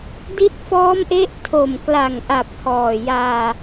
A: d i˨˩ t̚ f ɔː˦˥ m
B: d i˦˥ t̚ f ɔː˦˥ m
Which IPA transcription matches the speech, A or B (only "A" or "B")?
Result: B